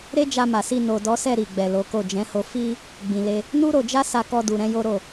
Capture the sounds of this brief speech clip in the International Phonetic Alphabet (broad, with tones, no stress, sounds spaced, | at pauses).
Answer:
ɾ e˦ d͡ʒ a˧ m a˨ s i˧ n o˨ d ɔ˨˦ s ɛ˦˨ ɾ i˨ ɡ͡b ɛ˨ l o˨˦ k o˦˨ d͡ʒ ɛ̃˨˦ h o˧ f i˦ | ɡ͡b ĩ˨ l e˧ | n u˦ ɾ o˧ d͡ʒ a˦ s a˧ k ɔ˧ d u˨ ɾ ɛ̃˧ j o˦ ɾ o˦˨